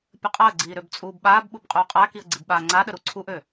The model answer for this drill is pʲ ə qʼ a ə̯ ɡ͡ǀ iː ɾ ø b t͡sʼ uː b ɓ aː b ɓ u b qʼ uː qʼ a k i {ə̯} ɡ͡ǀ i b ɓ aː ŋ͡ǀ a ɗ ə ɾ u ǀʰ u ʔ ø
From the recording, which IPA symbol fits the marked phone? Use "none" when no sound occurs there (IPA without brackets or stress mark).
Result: ə̯